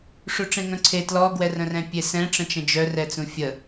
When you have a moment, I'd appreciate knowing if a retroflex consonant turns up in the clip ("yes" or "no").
yes